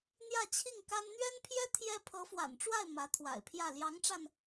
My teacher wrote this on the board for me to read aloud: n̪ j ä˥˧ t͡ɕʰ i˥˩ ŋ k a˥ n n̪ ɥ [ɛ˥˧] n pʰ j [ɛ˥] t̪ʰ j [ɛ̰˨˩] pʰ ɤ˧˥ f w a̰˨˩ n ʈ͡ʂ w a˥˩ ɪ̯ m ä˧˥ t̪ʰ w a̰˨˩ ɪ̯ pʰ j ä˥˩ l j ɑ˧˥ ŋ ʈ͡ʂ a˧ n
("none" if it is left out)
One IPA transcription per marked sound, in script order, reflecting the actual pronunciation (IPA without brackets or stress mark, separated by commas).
ɛ˥, ɛ˥, ɛ˥